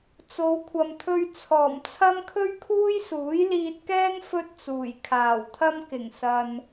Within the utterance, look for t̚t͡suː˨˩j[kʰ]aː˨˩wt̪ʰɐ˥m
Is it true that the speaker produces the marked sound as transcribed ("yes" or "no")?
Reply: yes